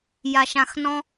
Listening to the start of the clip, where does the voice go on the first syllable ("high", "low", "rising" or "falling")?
low